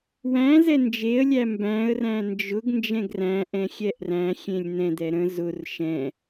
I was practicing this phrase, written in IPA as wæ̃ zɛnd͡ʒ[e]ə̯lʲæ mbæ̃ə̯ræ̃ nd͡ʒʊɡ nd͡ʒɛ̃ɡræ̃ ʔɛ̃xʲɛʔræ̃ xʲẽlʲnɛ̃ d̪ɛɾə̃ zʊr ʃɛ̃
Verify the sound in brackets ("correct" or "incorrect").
correct